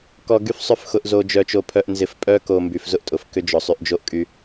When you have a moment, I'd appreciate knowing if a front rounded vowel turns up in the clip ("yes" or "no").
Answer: yes